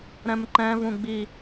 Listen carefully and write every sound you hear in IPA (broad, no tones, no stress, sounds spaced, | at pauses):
ɾ ɛ̃ m ǃ ɛ̃ v ũ ɡ͡b i